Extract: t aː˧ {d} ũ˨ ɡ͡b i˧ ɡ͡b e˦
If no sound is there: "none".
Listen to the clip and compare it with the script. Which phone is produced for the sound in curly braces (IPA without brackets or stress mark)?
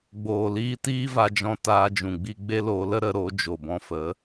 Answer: d͡ʒ